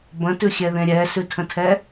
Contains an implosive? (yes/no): no